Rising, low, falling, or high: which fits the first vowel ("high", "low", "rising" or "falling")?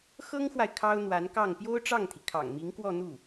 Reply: high